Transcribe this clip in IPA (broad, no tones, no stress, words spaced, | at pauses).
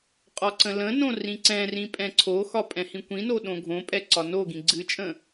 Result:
qʼɒǀə̃lə̃nõ rĩǀɛ̃rĩ pʼɛ̃ǀʰoxɒ pʼɛ̃hĩkʷĩno ɗõɡʱõpʼɛ ǀɒnoɡĩ ɡ͡ǀɨt͡ʃʼə̃